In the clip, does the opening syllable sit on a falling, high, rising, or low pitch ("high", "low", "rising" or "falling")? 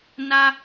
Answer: high